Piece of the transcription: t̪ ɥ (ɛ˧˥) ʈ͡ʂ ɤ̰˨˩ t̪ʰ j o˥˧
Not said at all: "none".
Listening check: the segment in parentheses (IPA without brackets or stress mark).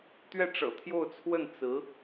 ɛ˥˩